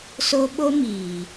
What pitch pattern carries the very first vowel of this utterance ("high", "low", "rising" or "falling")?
high